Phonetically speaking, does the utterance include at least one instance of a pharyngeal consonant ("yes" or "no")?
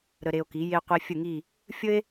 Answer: no